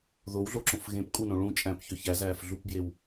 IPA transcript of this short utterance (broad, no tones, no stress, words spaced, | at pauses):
ðowɮoǁõfɣẽp kʼunõ ɭũt͡ʃʼæ̃pçø çæzæːfɮupbjew